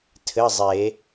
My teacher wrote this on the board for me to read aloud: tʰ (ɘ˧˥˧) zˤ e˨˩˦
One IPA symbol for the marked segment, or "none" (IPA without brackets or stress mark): ɘ˧˥˧